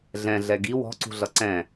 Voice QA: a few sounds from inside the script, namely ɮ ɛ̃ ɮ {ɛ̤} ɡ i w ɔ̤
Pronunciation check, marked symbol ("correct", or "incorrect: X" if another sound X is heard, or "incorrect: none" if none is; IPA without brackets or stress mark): incorrect: ɛ